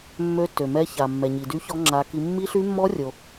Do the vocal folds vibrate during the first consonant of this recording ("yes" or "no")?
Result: yes